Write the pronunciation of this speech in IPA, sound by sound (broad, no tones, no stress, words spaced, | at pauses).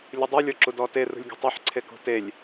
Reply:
lʲudˤu lʲɔǁudɔte rṳlʲɡʲɔ̤tˤeħ ǀʰekṳtelʲ